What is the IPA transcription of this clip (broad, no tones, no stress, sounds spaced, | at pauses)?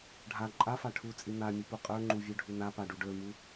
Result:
ɖʱ a ǃʼ a f a ʈʰ u t͡sʼ i n̪ a mʲ u p u qʼ ə˞ ŋ͡ǃ u vʲ ə˞ ɖʱ u n a p a ɖ u ɖ ə˞ m u